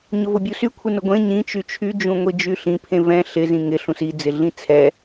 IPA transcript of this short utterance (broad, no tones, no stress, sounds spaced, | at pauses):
ɲ ʊ v ʊ bʲ u s y kʷʰ ɪ n ʊ ɡʷ ẽ ɲ ĩ t͡ʃ y t͡ʃʰ y d͡ʒ ũ ŋʷ i d͡ʒ y ɬ ĩ pʰ ẽ v ɛ̃ ɬ ɪ z ĩ ŋ ɪ ɬ ũ s i d͡z ɪ ɮ ĩ t͡sʰ ɛ